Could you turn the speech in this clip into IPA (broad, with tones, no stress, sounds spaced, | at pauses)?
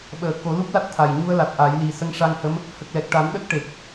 ɓ əː˨˩ k o˨˩˦ l u˦˥ p̚ l a˦˥ t̚ t̪ʰ a˨˩ j ɲ u˧ ə̯ l a˨˩ t̚ ʔ a˨˩˦ j l i˨˩ s ə˧˥ ŋ ʂ a˧ ŋ h ə˧˥ m | h ə˨˩ k̚ l ɛ˨˩ k̚ ʈ a˨˩˦ n ɗ ə˦˥ k̚ ʈ e˨˩ k̚